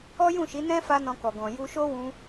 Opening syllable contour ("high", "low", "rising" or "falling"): high